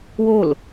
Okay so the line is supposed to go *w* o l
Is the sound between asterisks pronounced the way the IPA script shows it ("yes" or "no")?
yes